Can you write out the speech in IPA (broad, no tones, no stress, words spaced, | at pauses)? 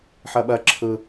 ħɜɓɜ ǁʰɯ